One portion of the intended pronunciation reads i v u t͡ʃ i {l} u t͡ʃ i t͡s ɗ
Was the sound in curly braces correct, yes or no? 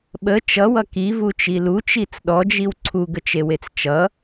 yes